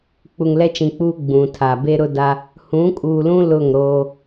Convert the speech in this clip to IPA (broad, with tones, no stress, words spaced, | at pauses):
k͡pu˨ŋlɛ˦t͡ʃĩ˨k͡puː˦ ɡ͡bũ˨tʰa˨ be˦ɾʊ˦da˦ | hũ˨˦kʼuː˨lũ˦ lʊ˦˨ŋɾoː˦